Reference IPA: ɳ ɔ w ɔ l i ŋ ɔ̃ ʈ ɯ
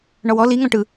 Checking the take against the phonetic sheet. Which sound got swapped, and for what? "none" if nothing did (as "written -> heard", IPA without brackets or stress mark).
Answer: none